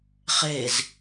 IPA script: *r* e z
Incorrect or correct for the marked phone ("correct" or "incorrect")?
incorrect